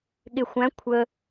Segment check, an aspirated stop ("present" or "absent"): present